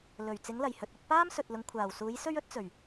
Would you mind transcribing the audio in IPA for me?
lɵ˨˩ɥt͡sɪ˨˥ŋlɐ˨˩jhɵ˨t̚ ɵ˧t̚paː˥m sɵ˨t̚lʊ˨˧ŋ kʷʰaː˨˩wsuː˨˥jsɵ˥ɥɵ˥t̚ t͡sɵ˨˩ɥ

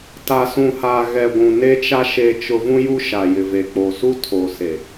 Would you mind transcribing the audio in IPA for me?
ta˨sũ˨ha˨ɣɛ˨ ɡʷũ˨ne˦t͡ʃa˦ ʃe˨t͡ʃʊ˨ vũ˦ju˦ ʃa˨jɪ˨ve˨k͡po˨ su˦tʰo˨se˨

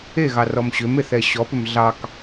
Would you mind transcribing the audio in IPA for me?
eɣɑrɔm ɕʏmeθɛ ɕɔpʏm ɮɑk

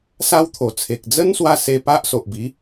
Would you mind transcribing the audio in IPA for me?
sa˦wt̪ʰo˨˩t͡sʰe˨k̚ d͡zə˦nswa˧ se˧pa˦ʔso˨ʔbi˨˦

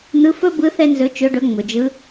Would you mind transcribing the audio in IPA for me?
n̪ɯ˨˦fɵ˦bɯ˨˦ θɛ˦nzɵ˨˦t͡ʃɵ˨˦ɖɵ˨˦ ŋ͡mɵ˩d͡ʒɯ˨˦

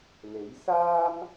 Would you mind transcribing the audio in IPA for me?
le˨˥j saː˥m

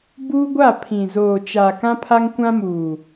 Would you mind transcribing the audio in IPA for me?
buː˦ɡʷa˦˨ pʰĩ˨ zoː˨t͡ʃaː˨ kã˦pʰa˦ŋkʷã˦muː˨

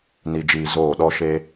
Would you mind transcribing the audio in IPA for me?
ni˨d͡ʒiː˨ zoː˦˨ɗɔ˦ ʃe˦

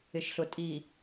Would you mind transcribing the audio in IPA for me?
ɪ˨ʃɬʊ˨ tʼi˨

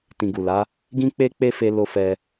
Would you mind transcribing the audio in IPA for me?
tĩ˨ɡu˨la˨˦ | ɡĩ˦k͡pe˦ k͡pe˦fe˧lo˧fɛ˧

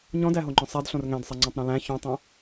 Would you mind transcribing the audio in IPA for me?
ɲɔ̃dæɦoŋ͡ǃœ̃ sˤædɬõr ŋæ̃dsˤæŋ͡ǀõtˤɾõ læ̃ çõtˤœ̃

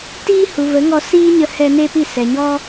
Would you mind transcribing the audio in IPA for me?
tiː˦hu˨və˨˦ŋɔ˧ siː˦ɲə˧hɛ˧ neː˦pi˦˨ sɛ˨ɲɔ˦

